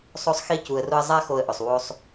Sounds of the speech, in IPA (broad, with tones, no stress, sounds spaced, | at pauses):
sˤ o˧ sˤ x i˧ c u˨ ə̯ r ʊ˧ ə̯ zˤ a˦ x o˧ ə̯ ʔ ʊ˨ sˤ w o˧ sˤ